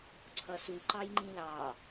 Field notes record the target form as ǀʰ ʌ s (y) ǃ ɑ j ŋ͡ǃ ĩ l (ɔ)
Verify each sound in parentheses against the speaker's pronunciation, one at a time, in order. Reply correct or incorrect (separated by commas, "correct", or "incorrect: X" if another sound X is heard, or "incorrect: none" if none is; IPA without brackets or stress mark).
incorrect: u, incorrect: ɑ